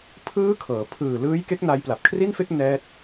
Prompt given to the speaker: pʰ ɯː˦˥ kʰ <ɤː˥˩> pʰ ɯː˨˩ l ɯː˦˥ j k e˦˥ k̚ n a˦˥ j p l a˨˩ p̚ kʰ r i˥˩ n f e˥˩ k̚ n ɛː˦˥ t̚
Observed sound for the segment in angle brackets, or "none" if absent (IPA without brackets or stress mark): ɤː˩˦